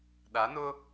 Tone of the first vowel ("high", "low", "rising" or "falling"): rising